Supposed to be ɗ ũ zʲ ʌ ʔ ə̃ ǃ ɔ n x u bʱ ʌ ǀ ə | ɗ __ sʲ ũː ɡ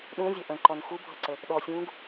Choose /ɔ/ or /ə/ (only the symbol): ɔ